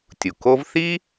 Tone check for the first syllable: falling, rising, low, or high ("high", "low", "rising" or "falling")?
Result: low